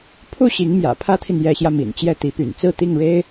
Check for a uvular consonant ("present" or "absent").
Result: absent